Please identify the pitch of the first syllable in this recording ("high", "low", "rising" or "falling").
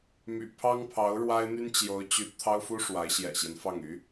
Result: low